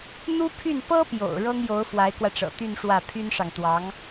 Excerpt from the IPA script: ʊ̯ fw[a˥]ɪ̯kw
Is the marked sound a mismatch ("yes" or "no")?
yes